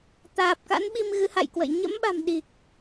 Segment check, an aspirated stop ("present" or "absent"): absent